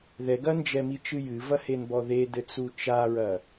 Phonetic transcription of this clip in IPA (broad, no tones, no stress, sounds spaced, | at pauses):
ð ɛ ɡ ɐ n d͡ʒ ɛ m i t͡ʃ ɨ j ɨ v ɐ h e n b ɔ ð e d ɘ t͡s u t͡ʃ a ɹ ɐ